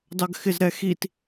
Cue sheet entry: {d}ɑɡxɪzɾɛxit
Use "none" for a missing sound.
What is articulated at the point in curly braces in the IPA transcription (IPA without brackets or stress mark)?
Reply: d